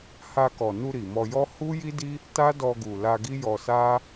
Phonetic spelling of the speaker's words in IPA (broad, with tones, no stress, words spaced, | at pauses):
ha˧kɔ˨nu˧ ɾi˨mɔ˧jɔ˦ hu˦ji˦di˦ | ta˦dɔ˧ɡu˨ la˧ɡi˦jɔ˧ sa˦